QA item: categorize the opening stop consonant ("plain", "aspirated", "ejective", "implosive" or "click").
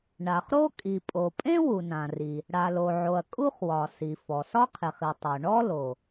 ejective